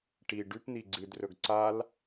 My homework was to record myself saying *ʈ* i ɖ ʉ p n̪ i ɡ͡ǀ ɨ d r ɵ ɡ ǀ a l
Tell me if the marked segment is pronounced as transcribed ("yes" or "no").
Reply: yes